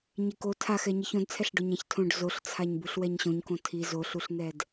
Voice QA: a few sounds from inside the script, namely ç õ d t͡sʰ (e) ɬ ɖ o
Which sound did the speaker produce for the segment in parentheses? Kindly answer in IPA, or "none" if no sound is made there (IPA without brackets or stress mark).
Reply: ɛ